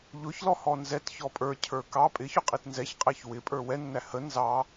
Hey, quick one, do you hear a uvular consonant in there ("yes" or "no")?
yes